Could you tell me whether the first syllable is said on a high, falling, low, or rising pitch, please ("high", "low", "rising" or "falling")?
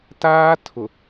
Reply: high